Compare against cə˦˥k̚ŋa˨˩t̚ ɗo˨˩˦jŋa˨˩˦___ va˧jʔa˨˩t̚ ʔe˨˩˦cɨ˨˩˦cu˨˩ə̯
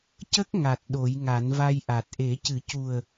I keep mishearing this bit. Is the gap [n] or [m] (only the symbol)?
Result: n